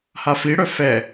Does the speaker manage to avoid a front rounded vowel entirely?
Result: no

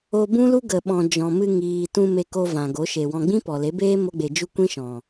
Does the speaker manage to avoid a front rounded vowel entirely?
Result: yes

